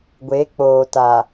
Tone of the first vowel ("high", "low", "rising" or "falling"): rising